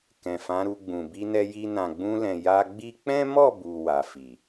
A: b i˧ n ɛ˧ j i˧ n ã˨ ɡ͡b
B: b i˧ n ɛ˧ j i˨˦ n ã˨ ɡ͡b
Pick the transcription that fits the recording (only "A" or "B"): A